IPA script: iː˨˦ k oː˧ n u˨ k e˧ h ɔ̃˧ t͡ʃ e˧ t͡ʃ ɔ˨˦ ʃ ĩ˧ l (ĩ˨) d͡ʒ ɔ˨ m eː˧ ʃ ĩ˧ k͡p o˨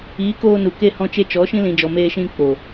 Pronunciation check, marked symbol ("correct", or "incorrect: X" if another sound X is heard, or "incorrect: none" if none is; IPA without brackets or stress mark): correct